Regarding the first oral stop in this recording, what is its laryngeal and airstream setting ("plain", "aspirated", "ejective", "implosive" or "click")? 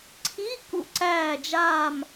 click